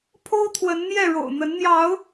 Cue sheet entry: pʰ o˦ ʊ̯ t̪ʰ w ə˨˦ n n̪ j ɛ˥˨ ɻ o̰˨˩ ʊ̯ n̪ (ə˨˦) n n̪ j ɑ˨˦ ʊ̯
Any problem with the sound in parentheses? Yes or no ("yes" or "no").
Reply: no